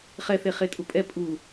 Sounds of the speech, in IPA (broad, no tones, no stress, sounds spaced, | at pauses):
χ ɛ θ e χ e tʼ u pʼ ɛ pʼ u